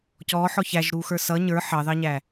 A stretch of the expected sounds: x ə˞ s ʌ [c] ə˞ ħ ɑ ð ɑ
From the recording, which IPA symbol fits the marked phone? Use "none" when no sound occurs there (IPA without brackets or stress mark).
ɲ